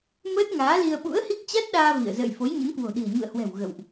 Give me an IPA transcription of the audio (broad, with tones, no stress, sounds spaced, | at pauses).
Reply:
m əː˦˥ t̚ ŋ aː˨˦ l i˧ ə̯ ɓ ṵ˧˥ ə̯ h i˦˥ k̚ t͡ɕ a˦˥ t̚ ɗ aː˧ v ḭ˧˨ ə̯ z ə̰ː˧˨ j f o˨˦ j ɲ ə˨˦ n k w o̤˨˩ ɗ i̤˨˩ ə̯ ɲ ṵ˧˨ ə̯ h w ɛ̤˨˩ w ɣ ə̰˧˨ w ʔ